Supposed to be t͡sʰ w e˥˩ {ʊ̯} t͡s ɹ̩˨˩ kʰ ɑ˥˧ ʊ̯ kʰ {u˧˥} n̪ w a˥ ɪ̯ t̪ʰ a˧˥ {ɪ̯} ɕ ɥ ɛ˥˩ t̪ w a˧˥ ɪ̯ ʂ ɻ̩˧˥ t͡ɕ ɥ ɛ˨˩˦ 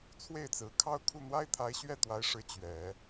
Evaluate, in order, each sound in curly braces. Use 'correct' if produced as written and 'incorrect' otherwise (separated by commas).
incorrect, incorrect, correct